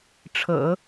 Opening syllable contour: low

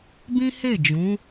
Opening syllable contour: high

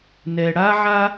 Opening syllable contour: low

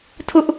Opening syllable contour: high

